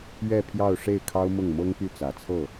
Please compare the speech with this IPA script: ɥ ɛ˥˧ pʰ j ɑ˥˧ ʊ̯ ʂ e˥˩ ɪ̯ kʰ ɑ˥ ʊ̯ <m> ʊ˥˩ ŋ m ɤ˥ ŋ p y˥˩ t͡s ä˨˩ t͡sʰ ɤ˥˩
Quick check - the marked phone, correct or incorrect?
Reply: correct